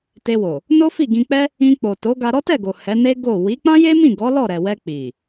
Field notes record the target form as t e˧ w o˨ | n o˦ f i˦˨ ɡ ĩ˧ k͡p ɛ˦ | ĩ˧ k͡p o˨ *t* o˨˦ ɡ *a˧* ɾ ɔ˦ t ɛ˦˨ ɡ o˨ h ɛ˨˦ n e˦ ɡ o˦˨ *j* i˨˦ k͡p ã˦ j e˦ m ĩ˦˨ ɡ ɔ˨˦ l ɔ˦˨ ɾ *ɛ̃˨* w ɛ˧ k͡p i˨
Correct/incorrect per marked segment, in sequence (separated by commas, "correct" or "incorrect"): correct, correct, incorrect, incorrect